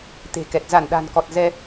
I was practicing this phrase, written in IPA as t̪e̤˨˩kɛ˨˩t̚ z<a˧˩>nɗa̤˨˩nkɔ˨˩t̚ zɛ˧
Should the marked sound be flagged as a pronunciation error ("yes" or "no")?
no